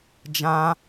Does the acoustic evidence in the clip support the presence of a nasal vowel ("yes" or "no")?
yes